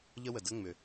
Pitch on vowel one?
high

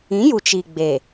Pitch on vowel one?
rising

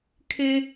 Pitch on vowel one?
high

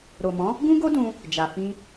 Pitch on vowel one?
low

